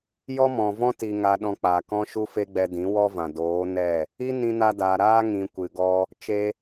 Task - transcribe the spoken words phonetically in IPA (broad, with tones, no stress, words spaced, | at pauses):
jɔ˦mɔ̃˨vɔ̃˦ ti˧ ŋa˧ɗɔ̃˧k͡pa˨ kɔ̃˧ʃu˧fe˧ ɡ͡bɛ˧dĩ˨˦wɔ˦vã˨ doː˨˦nɛ˦˨ | i˦nĩ˧na˧daː˨ ɾaː˦ŋĩ˨ kʷɨ˨ɡɔ˦ | t͡ʃe˧